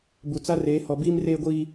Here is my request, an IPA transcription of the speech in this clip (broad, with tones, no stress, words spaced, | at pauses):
bu˨t͡sa˦reː˨˦ hɔ˨ biː˦mreː˦ɡʷiː˦